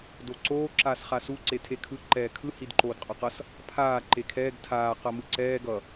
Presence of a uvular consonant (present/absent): present